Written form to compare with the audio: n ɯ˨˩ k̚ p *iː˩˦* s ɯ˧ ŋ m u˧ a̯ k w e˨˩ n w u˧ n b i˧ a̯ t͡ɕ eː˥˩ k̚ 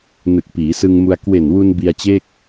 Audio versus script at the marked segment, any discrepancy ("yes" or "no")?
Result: no